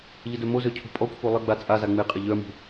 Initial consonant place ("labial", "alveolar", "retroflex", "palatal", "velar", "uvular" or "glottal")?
palatal